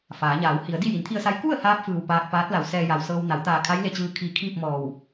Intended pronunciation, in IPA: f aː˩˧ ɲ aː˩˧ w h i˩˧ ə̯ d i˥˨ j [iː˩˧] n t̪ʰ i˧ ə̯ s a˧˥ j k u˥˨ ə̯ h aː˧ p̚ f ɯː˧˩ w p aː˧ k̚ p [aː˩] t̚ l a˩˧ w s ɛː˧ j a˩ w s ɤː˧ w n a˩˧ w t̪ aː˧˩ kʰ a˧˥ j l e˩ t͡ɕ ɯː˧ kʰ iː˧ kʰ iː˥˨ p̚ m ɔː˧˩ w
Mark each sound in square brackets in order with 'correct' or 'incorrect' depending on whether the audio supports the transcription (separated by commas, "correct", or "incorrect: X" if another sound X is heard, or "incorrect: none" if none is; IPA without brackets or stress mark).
incorrect: i˩˧, incorrect: aː˧˥